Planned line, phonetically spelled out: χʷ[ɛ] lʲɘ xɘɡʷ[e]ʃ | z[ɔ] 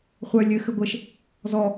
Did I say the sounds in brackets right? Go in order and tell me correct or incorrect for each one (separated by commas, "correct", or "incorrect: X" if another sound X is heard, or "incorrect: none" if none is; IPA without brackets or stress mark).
incorrect: œ, incorrect: ɘ, correct